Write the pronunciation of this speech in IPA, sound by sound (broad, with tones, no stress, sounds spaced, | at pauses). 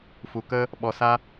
f u˨ k ə˦ | ɓ ɔ˨ s a˦